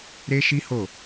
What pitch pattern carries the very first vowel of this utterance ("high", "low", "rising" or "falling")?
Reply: high